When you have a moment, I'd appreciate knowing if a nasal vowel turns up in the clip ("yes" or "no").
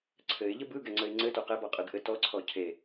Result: no